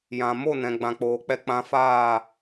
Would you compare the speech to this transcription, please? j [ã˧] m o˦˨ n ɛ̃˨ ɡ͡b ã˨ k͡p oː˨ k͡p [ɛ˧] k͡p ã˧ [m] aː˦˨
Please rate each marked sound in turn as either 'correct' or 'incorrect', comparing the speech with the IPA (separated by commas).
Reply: incorrect, correct, incorrect